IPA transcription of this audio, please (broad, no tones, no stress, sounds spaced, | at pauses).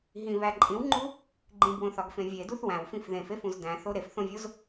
ɦ ĩ β æ ǃʼ ĩ w ŋ͡ǃ u | ɡ͡ǃ ĩ b w õ θ ɒ ɡ f ẽ vʲ e d u θ w æ̃ w f ĩ f ð ẽ f e f ũ z d æ̃ θ o ɾ e f θ õ vʲ o z